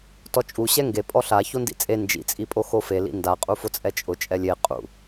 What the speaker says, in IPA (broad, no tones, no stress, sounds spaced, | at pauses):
t ɔ t͡ʃʼ u ɕ ɛ ŋ ɡ e pʼ ɔ ɬ a ç o n d ḭ t͡sʼ e n d͡ʒ ḭ t͡sʼ i pʼ o x o f e l ḭ n d a qʼ u f ʊ t͡sʼ ɛ t͡ʃʼ ʊ t͡ʃʼ ɛ lʲ e qʼ ṵ